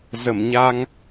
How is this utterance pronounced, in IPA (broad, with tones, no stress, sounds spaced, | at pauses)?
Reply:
z ə˧˩ m ɲ a˧ ŋ